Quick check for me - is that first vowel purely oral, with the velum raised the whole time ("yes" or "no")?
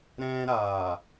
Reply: no